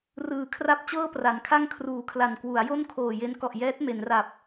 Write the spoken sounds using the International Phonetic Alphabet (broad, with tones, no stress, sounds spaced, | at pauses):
r ɯː˨˩ kʰ r a˥˩ p̚ t͡ɕ ɤː˥˩ p r a˩˦ n kʰ a˥˩ ŋ kʰ r uː˨˩ kʰ l a˨˩ n k w u˩˦ a̯ j o˥˩ n kʰ oː˨˩ j e˦˥ n k ɔ˨˩ ʔ j ɛː˦˥ t̚ m e˩˦ n r a˨˩ p̚